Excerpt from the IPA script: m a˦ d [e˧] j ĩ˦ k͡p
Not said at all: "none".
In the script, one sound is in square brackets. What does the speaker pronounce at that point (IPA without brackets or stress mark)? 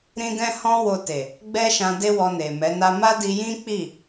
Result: i˧